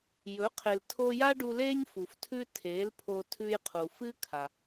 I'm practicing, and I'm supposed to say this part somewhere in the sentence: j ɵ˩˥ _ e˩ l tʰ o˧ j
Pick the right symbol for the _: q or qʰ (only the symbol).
qʰ